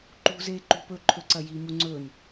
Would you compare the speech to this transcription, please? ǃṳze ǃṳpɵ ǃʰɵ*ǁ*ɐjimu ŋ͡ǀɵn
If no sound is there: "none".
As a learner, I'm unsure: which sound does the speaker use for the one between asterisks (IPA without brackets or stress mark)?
ǀ